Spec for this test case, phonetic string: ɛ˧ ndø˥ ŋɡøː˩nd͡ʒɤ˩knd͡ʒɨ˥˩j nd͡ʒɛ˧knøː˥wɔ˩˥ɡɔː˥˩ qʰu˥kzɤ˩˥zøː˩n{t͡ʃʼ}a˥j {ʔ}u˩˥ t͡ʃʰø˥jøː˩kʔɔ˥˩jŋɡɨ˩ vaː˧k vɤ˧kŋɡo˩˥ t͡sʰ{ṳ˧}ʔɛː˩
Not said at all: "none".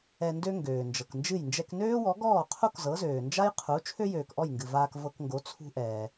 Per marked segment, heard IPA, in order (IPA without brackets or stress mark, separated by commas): d͡ʒ, qʰ, ṳ˧